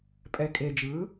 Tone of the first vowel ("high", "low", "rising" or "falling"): low